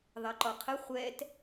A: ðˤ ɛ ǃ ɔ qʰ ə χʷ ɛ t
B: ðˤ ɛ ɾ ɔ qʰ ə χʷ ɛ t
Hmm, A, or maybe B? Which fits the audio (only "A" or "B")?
A